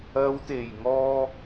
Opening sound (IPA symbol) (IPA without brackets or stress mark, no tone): ɐ